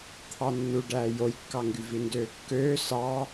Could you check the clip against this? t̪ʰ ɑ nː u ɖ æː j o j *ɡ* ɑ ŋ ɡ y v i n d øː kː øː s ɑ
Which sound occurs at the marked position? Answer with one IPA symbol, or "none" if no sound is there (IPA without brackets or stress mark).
kː